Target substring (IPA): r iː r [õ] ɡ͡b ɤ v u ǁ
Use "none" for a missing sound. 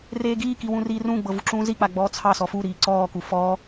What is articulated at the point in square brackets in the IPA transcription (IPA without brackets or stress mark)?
ũ